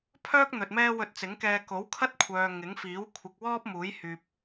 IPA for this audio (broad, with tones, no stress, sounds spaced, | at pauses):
pʰ œː˥ k̚ n̪ ɵ˨ t̚ m ɛː˥ w ɵ˧ t̚ t͡s ɪ˨˥ ŋ k ɛː˧ k o˨˥ w kʰ ɐ˥ t̚ kʷʰ œː˨ ŋ ɪ˨˥ ŋ f iː˨˥ w kʷʰ ɪ˨ k̚ w ɔː˥ p̚ m uː˨˥ j h yː˨ p̚